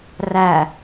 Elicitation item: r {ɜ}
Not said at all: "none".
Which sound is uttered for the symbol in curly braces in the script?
æ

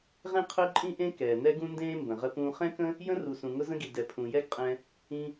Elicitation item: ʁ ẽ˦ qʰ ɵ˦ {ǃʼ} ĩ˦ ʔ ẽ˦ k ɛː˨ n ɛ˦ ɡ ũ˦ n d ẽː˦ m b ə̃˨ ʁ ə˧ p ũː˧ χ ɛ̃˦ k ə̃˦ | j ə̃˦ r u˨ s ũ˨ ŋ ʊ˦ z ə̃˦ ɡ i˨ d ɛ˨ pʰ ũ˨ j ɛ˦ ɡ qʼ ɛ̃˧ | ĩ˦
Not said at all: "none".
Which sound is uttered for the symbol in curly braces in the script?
ǃʼ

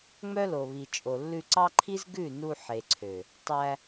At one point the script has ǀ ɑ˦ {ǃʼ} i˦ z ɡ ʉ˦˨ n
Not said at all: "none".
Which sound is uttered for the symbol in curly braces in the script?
ǃʰ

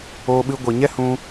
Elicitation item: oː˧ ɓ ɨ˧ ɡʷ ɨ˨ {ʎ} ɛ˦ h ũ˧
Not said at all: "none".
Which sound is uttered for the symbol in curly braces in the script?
ɲ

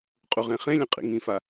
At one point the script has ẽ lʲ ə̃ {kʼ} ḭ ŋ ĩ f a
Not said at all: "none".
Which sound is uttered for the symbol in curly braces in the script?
qʼ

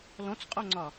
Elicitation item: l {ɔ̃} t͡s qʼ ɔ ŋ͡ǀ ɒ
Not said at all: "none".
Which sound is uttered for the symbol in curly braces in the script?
ɔ̃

